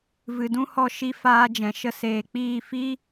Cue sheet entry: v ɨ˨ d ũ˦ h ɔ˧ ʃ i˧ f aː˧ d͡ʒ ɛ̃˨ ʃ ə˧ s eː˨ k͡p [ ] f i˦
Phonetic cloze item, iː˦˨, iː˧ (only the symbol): iː˦˨